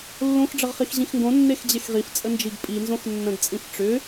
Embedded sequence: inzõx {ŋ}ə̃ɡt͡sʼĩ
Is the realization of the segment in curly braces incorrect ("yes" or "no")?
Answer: yes